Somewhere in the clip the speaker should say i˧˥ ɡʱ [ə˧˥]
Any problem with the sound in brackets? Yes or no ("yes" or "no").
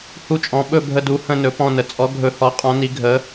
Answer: no